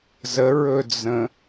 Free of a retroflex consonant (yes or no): yes